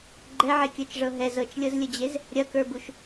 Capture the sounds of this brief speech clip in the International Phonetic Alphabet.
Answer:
ɡ͡ǃɛʕekʲə˞t͡ʃʐɤ ɦɛz ɤt͡ʃlʲɤzlʲəd͡ʑez | ɾʲɐkə˞buʃ

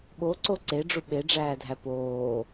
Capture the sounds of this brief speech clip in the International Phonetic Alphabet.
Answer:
ɓoǀo ǀeɖ͡ʐu ɓeɖ͡ʐæːdʱæ poː

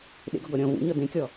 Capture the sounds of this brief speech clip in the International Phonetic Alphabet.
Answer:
ɗḛɡɔɡɔ ɾʲɔ̃ vṵɲɔ dẽkʲɔ

